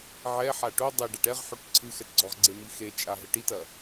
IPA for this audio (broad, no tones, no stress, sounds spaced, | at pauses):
ʕ ɛ ħ a ʈ o dˤ e ɖ a ʈ ɛ ʁ ħ o ʈ ǀʰ ɨ x ɛ t ɡ͡ǀ ɔ ʁ ɡ͡ǀ e m i x e t͡ʃʼ a ɦ ɘ ʈ i t ɐ